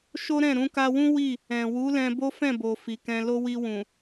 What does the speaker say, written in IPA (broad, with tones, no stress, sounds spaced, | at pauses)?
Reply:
ʃ o˦ ɾ ɛ̃˦˨ ɾ ũ˧ k a˧ w ũ˦ w i˦˨ | ɛ̃˨ w u˨˦ l ɛ̃˧ b o˦ f ɛ̃˦˨ b o˨ f i˨ k ɛ̃˧ l o˦ w i˧ w ũ˨